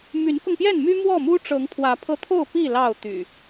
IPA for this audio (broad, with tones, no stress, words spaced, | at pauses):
my˨˦nkʊ˧ŋpjɛ˥˨nmy˦ mwɔ˥˨mu˦ʈ͡ʂɤ˨˦ŋ pʰwä˨˦pʰɤ˧t̪ʰo˥˨ʊ̯pi˥˨ lɑ˥˨ʊ̯t̪y̰˨˩